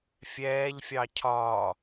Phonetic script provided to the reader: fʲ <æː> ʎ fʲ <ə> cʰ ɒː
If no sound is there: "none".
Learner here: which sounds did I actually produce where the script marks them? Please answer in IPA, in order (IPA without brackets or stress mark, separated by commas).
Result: ɛː, ɑ